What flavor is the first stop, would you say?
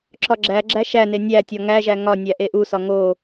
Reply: click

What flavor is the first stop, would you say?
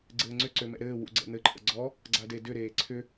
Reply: click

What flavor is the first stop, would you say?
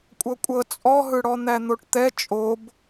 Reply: ejective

